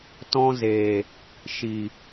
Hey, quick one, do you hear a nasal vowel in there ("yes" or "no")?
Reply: yes